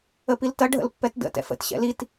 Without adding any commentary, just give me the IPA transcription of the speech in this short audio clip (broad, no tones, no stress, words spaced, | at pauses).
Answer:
əpiltɐ ɖʱə̰lpːɛtdə̰ tɛ̰fə̰t ɕɛ̰lit